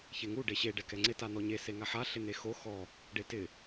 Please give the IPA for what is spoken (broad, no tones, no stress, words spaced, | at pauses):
çeŋu ɖeɕe ɖɛkɛŋ͡ǀɪ tan̪ɔɲe seŋaħa ɬɪn̪exo xɔ | ɖetɪ